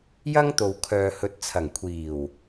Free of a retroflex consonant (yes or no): yes